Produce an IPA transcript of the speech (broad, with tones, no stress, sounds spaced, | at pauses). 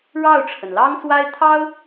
ɻ ɑ˥˩ ʊ̯ ʈ͡ʂʰ ə˩ n l ɑ˥ ŋ s w a˥ ɪ̯ t̪ʰ ɑ˥ ʊ̯